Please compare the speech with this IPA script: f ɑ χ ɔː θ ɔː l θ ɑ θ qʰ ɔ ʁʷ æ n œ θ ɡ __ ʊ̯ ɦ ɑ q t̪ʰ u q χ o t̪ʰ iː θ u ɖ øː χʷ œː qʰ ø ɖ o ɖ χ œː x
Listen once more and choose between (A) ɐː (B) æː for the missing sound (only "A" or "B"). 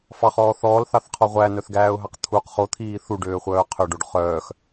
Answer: B